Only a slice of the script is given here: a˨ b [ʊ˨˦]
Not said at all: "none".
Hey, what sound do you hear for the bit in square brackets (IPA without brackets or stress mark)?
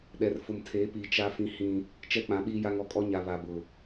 ʊ˨